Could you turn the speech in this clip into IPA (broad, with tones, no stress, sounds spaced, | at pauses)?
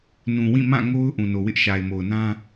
n ũ˨ w ĩ˦˨ m ã˦˨ ŋ o˦ ʊ̯ ʔ ũ˨ n o˨ w ɪ˦ ʔ ʃ a˨ ɪ̯ m o˨ ʊ̯ n ã˦